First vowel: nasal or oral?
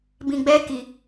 nasal